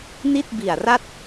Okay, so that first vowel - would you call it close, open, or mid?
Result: close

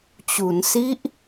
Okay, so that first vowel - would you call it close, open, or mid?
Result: close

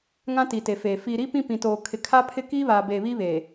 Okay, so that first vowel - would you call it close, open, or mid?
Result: open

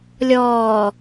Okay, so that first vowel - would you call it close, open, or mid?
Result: mid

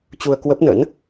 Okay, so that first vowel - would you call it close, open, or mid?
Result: close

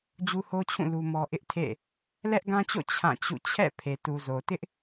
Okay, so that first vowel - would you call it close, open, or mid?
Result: close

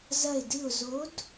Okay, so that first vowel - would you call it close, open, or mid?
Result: open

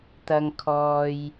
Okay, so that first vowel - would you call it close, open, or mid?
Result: open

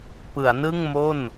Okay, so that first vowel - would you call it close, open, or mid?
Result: close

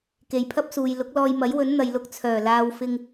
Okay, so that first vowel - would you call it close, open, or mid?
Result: mid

